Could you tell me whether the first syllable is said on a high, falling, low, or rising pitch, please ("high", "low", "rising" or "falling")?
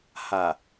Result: low